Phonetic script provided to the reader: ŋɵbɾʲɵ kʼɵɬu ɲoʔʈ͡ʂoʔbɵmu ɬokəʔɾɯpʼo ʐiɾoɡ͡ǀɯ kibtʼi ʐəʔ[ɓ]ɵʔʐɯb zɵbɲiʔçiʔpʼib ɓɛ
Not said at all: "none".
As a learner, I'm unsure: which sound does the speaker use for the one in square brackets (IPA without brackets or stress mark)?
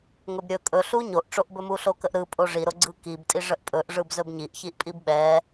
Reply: pʼ